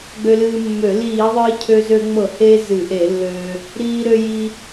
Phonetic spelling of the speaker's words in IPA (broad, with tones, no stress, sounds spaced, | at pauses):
ɡ͡b ø˧ l ɨː˧ mː ø˧˩˧ l iː˧˩˧ ðˤ ɨː˧ cʰ ø˧ z ø˧ ŋ͡m ɤ˧˩˧ h eː˧ z ɨ˧˩˧ ʔ e˧˩˧ lː øː˧ | ɾ iː˧ ɾ ø˧ j i˧